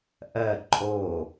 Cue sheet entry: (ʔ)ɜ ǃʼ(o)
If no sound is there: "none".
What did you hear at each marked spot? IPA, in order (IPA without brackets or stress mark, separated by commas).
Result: ʔ, o